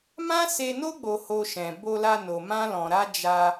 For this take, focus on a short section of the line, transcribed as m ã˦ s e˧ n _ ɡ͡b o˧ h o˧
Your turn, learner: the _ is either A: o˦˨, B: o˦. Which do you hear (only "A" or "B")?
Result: B